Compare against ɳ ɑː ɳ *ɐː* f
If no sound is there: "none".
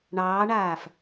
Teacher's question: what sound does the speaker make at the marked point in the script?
aː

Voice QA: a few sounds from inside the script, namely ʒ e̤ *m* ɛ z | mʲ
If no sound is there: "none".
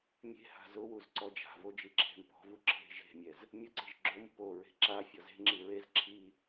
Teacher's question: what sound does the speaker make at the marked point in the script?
mʲ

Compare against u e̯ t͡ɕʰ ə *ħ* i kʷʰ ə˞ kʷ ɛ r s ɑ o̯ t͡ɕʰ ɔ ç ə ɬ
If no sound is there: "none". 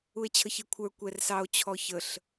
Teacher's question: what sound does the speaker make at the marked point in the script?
ç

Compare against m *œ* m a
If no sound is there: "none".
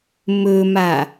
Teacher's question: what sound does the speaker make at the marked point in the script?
ɵ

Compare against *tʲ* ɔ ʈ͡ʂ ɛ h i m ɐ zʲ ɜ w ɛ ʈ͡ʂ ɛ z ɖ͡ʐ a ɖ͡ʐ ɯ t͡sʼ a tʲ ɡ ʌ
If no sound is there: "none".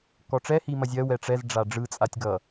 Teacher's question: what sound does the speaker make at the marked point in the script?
k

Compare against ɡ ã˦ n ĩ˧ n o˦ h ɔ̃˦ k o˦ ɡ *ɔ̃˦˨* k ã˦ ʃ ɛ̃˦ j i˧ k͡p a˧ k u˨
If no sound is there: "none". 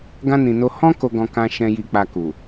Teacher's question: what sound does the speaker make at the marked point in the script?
ɔ̃˦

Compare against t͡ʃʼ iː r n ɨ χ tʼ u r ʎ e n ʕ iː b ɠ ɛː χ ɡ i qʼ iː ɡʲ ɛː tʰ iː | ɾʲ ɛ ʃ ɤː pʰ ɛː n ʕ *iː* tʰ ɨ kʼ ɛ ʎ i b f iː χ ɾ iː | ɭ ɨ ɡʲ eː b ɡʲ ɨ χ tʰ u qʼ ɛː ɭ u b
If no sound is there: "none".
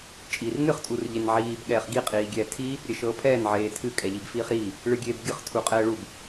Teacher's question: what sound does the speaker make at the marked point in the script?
eː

